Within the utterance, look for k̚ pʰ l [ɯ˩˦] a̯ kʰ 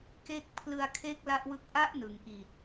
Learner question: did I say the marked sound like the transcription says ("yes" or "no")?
no